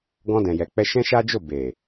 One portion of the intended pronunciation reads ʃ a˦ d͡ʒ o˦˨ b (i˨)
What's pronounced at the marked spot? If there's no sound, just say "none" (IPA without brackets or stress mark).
e˨